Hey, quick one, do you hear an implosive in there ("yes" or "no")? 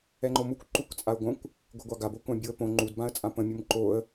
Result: no